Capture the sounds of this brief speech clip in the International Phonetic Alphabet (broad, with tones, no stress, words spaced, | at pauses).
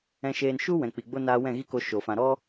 ɛ̃˧ʃeː˧nʃu˦wɛ̃˨ k͡pi˨ɡ͡bo˦naː˧ wɛ̃˦˨ɣi˦ko˧ ʃo˨ fã˨ ɾɔ˦